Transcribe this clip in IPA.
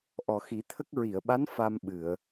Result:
ʔɔ˨˩xi˨˩˦t̪ʰə˦˥k̚ ɹi˨˩˨ə̯ɓa˧˥n fa˧mɓɨ˨˩˨ə̯

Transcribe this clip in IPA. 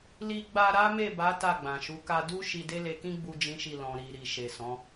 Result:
li˧ɡ͡ba˧ ɾa˦me˦˨ba˨˦ ta˦˨ɡ͡bã˨ʃu˨˦ ka˧du˦ ʃi˧de˦le˧kĩ˦ ɡ͡bu˦d͡ʒĩ˦ʃi˦˨ lɔ̃˨ɾi˨ ɾi˨ʃe˨sɔ̃˨˦

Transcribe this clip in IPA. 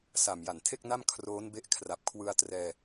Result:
sa˨˩mja˨˩ntʰe˥˩k̚na˥˩m kʰroː˦˥nbe˦˥ʔkʰra˨˩p̚ kʰwɯ˧a̯trɛː˧

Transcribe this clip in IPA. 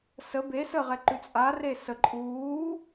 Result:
sə be səʁɛ ǃʉt͡sʼa resə ǃʼuː

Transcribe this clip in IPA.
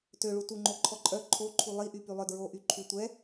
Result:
tøɭutuŋ͡ǃo ǃʰɔǃʼœ ǃʰoǃʰu lˠiʔy pylˠœdɹo ʔyǃʰy tʷɛ

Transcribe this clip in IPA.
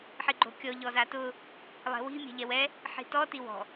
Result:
ħiɡ͡ǃo̤kʲɔ ʎɔzatʊ | lˠɛ̤wi̤ mʲɛ̤ʎɛwɛ | ħi̤tɔ tiwɔ̤

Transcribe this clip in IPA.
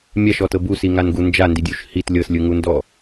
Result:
mʲaʃɔtɤ busiŋanɡu nd͡ʒandidʲuʃ hit lʲɤslʲɯŋundɔ

